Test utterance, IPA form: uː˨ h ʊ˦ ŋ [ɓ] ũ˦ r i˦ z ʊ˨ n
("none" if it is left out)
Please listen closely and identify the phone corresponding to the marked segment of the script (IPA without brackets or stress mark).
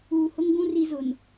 ɡ